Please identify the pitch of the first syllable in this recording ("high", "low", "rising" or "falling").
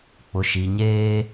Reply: low